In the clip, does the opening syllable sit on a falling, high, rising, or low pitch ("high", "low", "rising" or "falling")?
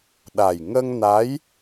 low